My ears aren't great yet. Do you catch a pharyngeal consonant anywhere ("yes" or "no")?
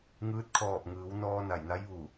no